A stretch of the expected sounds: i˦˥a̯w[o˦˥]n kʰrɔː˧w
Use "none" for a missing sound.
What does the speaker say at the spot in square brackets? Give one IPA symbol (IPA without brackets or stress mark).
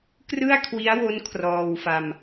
o˦˥